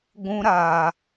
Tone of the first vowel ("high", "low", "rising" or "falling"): high